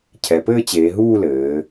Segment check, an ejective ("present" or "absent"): absent